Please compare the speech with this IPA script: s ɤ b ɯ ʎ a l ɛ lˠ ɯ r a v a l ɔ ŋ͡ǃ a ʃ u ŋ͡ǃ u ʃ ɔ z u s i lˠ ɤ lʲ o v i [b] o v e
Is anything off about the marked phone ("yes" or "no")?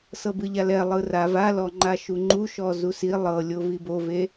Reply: no